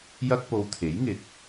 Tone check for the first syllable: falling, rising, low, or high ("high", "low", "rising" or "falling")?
high